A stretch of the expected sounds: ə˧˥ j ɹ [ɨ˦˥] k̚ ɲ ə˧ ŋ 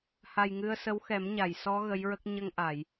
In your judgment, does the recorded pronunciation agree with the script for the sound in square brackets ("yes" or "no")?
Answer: no